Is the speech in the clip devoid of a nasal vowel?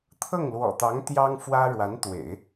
yes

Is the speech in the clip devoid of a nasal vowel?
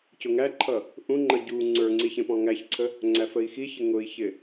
no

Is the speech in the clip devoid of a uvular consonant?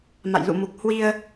yes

